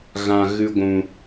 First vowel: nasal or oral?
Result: nasal